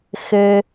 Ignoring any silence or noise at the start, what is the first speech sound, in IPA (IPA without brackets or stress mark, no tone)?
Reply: x